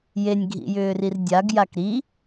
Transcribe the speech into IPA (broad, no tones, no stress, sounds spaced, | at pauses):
j e nʲ ɡʱ ḭ j ʏː r i r dʲ a ɡ j a k ɾ i